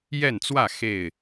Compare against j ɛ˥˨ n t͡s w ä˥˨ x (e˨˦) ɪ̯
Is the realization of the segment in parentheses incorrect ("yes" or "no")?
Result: yes